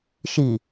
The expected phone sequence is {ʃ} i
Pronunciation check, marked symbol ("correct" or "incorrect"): correct